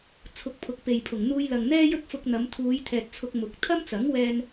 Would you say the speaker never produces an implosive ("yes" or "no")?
yes